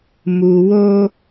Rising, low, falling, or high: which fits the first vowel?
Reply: low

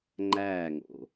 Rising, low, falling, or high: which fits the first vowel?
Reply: falling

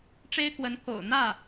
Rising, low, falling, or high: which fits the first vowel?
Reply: high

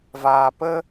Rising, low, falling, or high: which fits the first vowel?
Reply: low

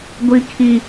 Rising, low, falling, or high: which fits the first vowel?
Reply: high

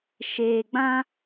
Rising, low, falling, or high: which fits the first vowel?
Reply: low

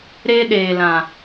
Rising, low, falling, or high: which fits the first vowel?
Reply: high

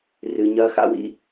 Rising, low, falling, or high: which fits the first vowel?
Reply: high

